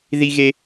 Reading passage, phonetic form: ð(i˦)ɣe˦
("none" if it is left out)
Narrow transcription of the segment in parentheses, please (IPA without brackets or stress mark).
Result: i˦